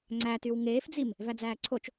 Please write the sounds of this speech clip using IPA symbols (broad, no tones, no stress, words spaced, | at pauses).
ŋ͡ǀætyw ŋeːfd͡zim | væd͡zæːǀʰot͡ʃ